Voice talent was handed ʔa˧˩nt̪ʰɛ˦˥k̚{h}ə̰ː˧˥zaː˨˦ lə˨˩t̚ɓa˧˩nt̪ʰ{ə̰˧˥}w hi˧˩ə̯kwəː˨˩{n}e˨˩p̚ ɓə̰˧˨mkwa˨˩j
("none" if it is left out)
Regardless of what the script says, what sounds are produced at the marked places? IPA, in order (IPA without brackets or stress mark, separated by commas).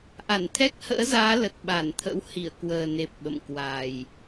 h, ə̰˧˥, n